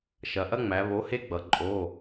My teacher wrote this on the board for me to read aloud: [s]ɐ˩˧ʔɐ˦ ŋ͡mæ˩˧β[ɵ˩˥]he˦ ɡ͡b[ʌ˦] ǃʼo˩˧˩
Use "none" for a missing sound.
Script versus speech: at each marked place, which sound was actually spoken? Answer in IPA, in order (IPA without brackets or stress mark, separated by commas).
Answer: ʃ, o˩˥, ʌ˩˧